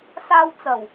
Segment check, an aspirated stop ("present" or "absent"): absent